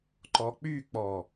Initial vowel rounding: rounded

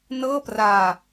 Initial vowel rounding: unrounded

